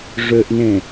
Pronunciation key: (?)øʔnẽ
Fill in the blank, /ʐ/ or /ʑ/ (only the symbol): ʐ